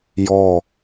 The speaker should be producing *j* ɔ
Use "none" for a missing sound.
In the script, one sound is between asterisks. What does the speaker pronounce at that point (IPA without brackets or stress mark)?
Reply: j